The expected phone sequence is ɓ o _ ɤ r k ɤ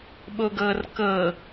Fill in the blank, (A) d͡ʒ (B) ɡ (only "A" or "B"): B